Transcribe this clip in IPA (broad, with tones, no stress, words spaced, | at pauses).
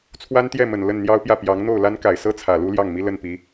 t͡sʰwa˥nt̪jɛ˥˩mə˨˩n lə˥˩n n̪jɑ˥ʊ̯pjä˥˩ pjɑ˧˥ŋ n̪o˥˩ʊ̯la˥n ka˨˩ɪ̯sɤ˥ t͡sʰä˨˩lu˥ljɑ˥˩ŋmi˥ lə˥˩npi˧˥